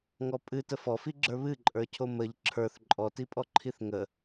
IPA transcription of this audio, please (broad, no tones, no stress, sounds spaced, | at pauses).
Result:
ŋ ɔ pʼ ɨ t ə f ɔ f i ɡ͡ǁ ə˞ β ɨ ǃʼ ə˞ cʰ o m ə ʎ ǁʰ ə˞ θ ǃʼ ɔ t i pʼ ɔ ǃʰ i θ ŋ ə